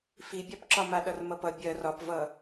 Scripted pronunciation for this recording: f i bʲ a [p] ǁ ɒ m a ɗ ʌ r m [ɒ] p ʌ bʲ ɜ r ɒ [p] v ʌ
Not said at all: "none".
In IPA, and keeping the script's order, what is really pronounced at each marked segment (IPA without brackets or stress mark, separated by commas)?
p, ʌ, p